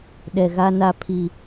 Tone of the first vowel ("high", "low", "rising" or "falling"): low